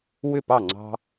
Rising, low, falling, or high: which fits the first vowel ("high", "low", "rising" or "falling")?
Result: falling